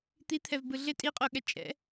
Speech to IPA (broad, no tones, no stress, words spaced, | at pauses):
t̪it̪ʰɛvbɯ ɮɪ tʼiqʼoɠɛ t͡ʃʼɛ̰